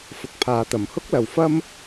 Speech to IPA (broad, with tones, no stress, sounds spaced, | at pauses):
f ʊ˨ k̚ pʰ aː˨ t̪ ɐ˨˩ m h ʊ˥ k̚ l ɐ˨ w f ɐ˥ m